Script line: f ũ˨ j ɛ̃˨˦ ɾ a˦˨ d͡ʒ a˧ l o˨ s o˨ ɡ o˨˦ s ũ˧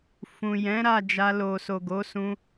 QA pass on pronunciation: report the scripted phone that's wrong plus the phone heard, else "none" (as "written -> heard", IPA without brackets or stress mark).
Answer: none